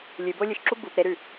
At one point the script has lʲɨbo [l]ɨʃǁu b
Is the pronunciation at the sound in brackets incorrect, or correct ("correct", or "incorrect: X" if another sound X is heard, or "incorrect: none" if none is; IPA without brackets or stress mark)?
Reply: incorrect: lʲ